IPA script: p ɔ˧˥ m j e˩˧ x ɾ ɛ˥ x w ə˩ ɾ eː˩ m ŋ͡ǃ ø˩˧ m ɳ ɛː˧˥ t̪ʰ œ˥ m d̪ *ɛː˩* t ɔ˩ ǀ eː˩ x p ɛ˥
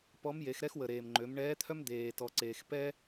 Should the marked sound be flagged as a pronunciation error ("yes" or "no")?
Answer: yes